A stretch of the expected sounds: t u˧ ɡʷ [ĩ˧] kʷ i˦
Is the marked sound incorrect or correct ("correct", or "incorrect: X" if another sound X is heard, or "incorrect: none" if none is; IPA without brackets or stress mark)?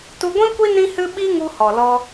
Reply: incorrect: ĩ˦